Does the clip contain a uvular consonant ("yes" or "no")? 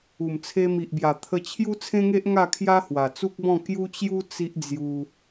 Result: no